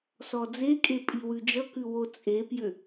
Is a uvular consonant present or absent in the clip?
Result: absent